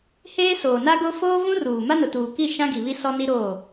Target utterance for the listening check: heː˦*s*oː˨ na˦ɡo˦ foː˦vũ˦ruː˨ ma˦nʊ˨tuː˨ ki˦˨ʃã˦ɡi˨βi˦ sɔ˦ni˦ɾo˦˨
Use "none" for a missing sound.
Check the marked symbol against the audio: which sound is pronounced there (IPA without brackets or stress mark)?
s